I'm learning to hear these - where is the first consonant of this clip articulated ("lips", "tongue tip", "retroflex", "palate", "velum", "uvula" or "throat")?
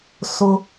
tongue tip